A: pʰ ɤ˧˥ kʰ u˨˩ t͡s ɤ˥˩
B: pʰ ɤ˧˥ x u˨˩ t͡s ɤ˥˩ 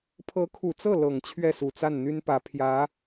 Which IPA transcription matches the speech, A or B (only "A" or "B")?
A